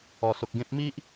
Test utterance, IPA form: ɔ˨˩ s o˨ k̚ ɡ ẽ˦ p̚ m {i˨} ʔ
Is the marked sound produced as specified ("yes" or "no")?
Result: no